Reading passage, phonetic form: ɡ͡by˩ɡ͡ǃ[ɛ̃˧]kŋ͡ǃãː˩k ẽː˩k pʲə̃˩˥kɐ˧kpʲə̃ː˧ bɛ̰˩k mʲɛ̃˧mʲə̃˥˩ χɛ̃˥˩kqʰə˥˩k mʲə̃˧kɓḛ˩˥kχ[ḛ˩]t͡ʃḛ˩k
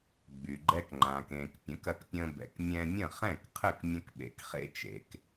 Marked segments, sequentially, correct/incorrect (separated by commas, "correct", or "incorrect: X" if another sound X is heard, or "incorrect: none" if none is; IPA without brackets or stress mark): incorrect: ɛ˧, incorrect: ḛ˧